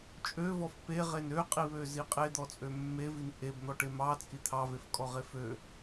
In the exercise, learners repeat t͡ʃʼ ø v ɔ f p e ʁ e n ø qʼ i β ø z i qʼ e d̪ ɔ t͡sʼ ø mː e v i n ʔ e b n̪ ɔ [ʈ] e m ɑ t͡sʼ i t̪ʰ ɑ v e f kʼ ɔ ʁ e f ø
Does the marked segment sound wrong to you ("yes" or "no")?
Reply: no